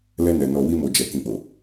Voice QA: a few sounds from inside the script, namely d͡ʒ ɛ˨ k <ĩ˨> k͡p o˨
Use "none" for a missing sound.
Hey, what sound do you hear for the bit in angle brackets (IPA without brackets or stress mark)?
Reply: ĩ˨